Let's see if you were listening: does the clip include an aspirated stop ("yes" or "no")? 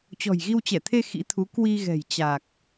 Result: yes